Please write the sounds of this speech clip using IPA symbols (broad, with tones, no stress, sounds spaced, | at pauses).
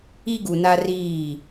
i˦ ɡ u˨ n a˦ r iː˦˨